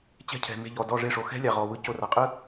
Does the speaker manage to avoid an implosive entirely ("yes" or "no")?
yes